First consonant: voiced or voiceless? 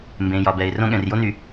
voiced